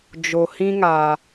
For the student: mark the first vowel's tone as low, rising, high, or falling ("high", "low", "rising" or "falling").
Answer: low